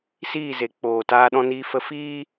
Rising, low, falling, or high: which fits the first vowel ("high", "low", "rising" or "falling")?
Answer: falling